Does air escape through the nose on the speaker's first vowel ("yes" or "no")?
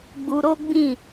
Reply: no